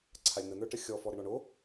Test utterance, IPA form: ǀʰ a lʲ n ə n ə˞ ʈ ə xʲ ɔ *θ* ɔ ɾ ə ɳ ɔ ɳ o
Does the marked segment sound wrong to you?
yes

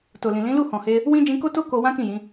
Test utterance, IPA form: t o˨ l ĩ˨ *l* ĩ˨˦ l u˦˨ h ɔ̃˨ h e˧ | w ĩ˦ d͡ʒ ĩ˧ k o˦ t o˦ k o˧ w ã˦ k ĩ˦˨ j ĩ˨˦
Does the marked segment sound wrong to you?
no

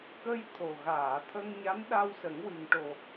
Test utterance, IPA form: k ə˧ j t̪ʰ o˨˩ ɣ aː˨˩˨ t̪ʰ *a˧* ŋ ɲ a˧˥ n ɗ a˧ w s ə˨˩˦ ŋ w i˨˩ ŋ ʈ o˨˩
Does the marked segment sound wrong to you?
yes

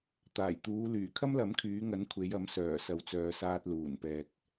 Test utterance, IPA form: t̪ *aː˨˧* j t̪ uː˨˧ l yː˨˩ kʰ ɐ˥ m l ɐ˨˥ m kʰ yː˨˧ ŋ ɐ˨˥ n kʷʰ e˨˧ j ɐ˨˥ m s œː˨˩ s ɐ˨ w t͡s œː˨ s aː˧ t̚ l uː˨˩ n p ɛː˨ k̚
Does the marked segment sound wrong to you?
yes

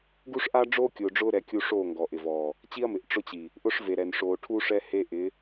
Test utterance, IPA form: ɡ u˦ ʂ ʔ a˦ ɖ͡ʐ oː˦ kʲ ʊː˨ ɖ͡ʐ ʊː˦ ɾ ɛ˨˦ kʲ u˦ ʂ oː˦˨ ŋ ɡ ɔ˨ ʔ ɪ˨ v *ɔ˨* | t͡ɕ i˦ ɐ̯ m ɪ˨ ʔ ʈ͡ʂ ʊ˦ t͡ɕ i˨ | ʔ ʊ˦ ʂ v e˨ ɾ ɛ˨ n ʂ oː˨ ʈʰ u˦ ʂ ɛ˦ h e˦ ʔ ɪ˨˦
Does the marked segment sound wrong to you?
yes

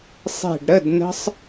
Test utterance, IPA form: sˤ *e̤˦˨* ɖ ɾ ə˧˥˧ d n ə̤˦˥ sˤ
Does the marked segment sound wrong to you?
no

